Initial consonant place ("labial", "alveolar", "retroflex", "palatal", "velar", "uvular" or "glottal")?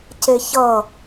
palatal